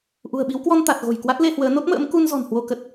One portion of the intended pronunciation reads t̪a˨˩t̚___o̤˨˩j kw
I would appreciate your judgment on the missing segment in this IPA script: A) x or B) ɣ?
B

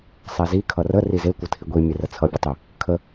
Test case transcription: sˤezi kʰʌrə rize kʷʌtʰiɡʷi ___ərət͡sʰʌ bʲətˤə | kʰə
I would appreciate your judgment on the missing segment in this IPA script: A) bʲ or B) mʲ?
B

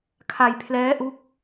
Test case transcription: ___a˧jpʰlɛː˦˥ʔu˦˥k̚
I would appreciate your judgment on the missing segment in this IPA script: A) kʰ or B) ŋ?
A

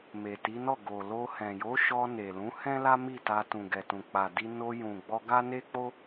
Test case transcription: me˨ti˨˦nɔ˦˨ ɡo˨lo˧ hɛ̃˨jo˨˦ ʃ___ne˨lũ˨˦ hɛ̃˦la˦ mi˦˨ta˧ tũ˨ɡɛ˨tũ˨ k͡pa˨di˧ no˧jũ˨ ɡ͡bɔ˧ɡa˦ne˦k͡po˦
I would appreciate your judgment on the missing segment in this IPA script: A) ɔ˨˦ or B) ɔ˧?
B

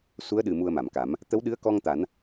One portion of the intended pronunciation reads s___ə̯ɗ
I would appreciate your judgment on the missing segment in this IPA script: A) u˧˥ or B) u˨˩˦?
A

